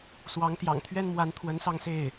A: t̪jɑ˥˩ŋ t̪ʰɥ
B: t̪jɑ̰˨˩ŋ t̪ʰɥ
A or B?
B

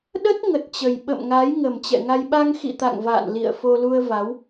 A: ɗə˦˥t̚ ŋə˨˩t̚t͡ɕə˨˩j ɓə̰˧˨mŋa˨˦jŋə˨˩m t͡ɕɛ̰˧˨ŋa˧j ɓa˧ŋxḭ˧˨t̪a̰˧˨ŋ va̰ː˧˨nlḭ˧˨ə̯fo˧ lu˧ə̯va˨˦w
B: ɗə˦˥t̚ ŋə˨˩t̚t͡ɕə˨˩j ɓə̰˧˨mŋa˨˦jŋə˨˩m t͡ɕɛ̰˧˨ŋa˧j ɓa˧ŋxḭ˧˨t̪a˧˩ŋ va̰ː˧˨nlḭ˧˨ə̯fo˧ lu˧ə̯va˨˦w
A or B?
A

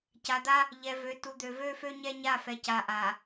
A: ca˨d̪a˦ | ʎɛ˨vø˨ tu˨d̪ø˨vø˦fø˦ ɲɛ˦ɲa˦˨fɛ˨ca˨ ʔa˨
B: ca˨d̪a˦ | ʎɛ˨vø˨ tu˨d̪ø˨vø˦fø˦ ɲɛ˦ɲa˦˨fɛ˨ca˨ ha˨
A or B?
A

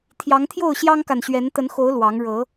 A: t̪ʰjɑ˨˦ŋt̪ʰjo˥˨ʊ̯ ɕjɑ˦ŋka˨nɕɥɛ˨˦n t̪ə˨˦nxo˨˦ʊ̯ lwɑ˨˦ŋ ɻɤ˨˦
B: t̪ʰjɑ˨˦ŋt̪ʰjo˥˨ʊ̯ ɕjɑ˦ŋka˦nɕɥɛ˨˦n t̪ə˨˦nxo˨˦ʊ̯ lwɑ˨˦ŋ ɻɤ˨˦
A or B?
A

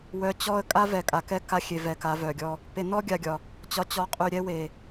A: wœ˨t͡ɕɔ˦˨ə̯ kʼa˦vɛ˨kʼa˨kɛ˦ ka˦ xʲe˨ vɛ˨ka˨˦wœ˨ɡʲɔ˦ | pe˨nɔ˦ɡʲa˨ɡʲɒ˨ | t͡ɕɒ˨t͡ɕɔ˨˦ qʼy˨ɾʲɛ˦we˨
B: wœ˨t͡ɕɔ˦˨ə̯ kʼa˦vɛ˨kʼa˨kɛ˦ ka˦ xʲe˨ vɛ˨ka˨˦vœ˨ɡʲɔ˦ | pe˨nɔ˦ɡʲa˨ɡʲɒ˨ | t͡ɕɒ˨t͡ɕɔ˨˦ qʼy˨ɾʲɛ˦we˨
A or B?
B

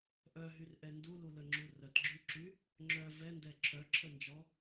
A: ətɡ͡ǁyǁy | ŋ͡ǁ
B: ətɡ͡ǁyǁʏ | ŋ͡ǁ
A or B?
A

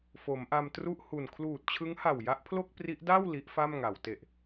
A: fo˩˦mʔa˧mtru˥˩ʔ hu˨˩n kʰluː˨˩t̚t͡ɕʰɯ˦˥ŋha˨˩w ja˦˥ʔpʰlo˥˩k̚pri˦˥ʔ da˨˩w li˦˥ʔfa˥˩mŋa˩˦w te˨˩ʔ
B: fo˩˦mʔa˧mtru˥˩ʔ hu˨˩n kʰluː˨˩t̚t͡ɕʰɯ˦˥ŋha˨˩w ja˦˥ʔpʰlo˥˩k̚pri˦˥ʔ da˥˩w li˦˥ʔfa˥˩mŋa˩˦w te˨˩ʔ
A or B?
B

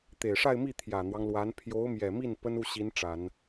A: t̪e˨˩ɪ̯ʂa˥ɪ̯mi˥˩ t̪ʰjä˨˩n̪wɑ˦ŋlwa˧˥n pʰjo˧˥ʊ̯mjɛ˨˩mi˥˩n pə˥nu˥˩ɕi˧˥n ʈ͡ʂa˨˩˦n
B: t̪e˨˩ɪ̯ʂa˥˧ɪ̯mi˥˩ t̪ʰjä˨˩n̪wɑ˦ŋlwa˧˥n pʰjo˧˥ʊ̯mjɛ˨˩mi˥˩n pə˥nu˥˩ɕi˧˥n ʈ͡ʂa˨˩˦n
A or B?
B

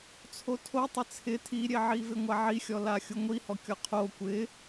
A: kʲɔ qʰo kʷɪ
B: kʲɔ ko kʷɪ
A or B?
A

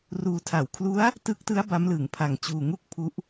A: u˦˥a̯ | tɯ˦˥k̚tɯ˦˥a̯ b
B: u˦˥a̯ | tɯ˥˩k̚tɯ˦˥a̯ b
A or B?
A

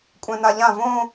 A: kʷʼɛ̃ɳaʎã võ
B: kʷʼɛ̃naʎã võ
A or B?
B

